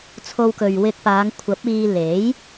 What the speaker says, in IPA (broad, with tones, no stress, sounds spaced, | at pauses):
t͡sʰ o˧ w k ɵ˨ ɥ w ɪ˧ k̚ p aː˨˧ ŋ kʷʰ ɐ˨˥ p̚ iː˧ l e˨˥ j